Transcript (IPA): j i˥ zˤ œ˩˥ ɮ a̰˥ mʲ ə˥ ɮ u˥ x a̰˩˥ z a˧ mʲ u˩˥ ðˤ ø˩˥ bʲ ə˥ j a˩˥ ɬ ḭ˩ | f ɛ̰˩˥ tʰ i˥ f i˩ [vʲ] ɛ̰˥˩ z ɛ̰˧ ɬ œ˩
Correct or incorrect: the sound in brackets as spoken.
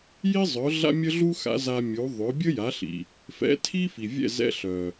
correct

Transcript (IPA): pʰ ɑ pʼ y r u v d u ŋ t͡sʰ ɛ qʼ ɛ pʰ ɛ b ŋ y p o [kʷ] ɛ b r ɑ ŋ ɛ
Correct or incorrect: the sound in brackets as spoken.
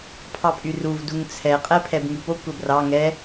correct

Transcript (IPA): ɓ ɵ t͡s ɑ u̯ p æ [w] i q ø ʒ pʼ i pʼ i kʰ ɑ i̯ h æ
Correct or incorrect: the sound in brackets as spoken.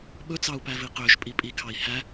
incorrect: v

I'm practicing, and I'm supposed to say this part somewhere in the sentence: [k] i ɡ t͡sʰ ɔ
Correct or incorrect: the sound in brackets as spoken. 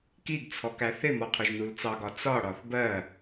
correct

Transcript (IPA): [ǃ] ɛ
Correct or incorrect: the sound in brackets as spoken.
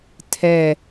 incorrect: tʰ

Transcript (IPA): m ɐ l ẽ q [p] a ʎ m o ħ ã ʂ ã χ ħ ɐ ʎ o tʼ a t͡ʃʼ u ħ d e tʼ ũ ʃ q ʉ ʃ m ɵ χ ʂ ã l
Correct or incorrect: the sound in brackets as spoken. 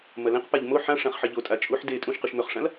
correct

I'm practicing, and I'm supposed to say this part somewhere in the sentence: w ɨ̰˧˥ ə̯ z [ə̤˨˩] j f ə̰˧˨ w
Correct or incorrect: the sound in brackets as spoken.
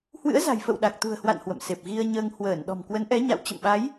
incorrect: a̤˨˩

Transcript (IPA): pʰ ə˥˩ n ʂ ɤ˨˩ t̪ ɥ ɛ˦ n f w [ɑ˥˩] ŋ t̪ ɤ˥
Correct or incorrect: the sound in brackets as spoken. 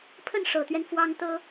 incorrect: ɑ˥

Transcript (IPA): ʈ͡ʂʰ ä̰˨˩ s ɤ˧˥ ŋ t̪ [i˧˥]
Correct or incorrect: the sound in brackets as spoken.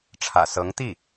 incorrect: i˥˩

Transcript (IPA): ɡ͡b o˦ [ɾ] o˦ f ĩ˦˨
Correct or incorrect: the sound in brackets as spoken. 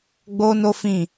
incorrect: n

